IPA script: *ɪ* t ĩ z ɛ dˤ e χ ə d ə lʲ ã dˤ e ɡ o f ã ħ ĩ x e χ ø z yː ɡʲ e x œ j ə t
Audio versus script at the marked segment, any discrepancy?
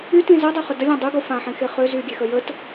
yes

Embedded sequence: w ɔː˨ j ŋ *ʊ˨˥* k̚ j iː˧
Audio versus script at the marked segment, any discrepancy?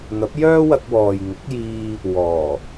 no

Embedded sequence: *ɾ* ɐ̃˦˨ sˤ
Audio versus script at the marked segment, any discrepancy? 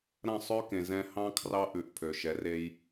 no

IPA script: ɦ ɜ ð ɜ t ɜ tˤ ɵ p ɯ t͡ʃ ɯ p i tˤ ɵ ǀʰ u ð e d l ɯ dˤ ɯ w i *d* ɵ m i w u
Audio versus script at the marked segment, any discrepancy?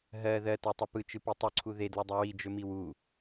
yes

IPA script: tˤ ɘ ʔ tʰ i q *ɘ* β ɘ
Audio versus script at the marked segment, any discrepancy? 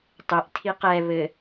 yes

